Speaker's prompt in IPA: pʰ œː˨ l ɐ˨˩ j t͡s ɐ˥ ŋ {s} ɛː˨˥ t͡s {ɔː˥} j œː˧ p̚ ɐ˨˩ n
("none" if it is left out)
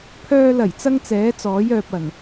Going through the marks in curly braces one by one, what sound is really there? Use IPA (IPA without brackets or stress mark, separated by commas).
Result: t͡s, ɔː˨˥